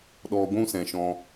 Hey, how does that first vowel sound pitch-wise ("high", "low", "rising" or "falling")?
low